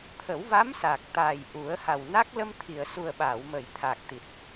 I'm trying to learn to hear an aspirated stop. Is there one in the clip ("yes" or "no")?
yes